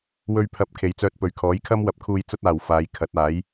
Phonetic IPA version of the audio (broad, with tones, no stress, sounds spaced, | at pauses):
w ɵ˧ ɥ pʰ ɐ˨˥ p̚ kʰ e˨˧ j t͡s œː˧ t̚ p ɵ˨˧ ɥ kʰ ɔː˨˥ j kʰ ɐ˥ m w ɐ˨˥ p̚ kʰ uː˧ j t͡s ɐ˥ t̚ aː˨ w f aː˨˧ j kʰ ɐ˨˥ t̚ aː˨˥ j